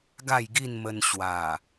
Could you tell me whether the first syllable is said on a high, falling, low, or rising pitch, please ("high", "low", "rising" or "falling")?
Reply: falling